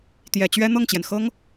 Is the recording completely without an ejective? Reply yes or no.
yes